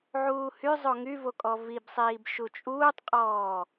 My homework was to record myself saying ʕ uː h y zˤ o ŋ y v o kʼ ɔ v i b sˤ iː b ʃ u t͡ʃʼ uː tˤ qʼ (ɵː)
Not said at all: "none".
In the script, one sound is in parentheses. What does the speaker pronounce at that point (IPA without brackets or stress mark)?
ɔː